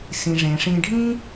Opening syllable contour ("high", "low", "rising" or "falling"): low